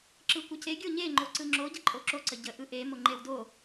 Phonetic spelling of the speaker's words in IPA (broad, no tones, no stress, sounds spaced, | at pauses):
ǁ ɯ kʷ ə c e ɡʲ o ɲ e ŋ͡ǃ o ǀ ɯ ŋ͡ǁ o ɟ ə ǃʼ o ǁ o ǀ ə ɟ ə ʔ ɯ ʔ e m o ŋ͡ǃ e w d o